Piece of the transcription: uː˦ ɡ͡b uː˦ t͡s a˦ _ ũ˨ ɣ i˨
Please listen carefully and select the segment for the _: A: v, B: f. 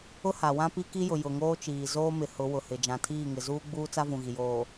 A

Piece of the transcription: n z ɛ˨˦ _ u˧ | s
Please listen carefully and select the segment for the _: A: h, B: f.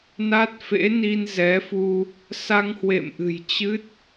B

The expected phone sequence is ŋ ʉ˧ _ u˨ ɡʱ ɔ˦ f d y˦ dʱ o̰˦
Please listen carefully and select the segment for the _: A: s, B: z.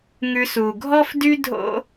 A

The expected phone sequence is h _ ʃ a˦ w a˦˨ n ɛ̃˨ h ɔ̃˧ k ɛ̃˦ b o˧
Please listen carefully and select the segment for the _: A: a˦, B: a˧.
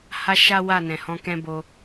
B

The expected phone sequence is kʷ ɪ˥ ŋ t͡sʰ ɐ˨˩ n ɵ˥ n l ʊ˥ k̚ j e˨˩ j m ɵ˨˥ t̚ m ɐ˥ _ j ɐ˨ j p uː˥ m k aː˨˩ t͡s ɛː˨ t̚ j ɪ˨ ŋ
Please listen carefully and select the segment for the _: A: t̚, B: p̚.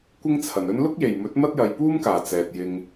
A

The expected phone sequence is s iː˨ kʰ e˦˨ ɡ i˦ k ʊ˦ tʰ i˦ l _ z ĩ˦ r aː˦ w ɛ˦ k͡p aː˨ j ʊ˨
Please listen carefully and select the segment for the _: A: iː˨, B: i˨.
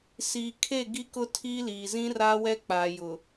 A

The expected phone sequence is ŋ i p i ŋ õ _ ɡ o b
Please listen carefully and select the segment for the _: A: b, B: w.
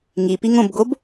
A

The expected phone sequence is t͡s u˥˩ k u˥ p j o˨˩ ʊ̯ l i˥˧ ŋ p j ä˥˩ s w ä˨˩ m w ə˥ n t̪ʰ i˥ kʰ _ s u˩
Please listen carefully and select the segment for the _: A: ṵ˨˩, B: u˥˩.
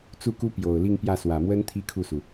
B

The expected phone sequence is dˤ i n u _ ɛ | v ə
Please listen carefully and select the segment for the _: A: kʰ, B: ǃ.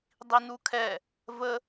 A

